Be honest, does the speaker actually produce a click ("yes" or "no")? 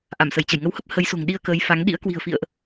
no